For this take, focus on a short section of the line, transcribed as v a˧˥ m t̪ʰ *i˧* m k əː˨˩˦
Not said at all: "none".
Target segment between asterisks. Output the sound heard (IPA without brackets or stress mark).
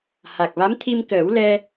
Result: i˧